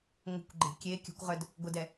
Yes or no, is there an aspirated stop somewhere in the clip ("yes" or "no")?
no